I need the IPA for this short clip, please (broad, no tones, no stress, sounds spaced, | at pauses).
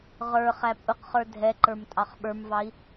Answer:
ʁ ə˞ χ æ pʼ ʊ q χ ə˞ dʱ ɛ ǃ ə˞ m tʼ ɑ χ ɓ ə˞ m v ɑ i̯